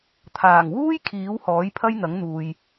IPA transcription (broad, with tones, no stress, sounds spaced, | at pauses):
t̪ʰ aː˨˩ ŋ w uː˥ j kʰ iː˨˥ w h ɔː˨˥ j pʰ ɐ˥ j n̪ ɐ˨˥ ŋ n̪ uː˨ j